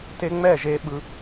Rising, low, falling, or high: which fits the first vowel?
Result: high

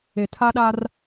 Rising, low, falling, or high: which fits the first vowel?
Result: low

